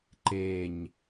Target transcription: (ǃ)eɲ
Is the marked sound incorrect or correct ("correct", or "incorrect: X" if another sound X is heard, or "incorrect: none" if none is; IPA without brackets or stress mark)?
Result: correct